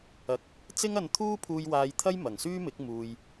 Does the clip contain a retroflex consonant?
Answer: no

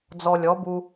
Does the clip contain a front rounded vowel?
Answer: no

